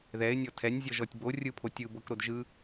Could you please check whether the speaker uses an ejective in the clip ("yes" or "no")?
no